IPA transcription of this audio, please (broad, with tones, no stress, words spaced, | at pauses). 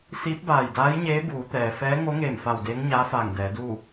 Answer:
siː˧˥p̚baː˧˩jdaː˧˥jɲeː˧˥ buː˩˧t̪ɛː˩ fɛː˧˥ŋo˧˥ŋeː˧˩m fa˧˩w deː˧˥ŋɲaː˧˥faː˧˩ŋ dɛː˩˧duː˥˨